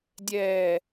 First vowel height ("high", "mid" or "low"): mid